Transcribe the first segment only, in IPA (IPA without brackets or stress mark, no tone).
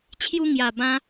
t͡ɕʰ